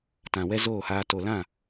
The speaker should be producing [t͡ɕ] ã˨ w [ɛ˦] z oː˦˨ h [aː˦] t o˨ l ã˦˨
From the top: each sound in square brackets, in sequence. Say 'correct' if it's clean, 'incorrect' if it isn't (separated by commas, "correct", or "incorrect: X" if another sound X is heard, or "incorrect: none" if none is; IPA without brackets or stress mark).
incorrect: t, correct, incorrect: aː˧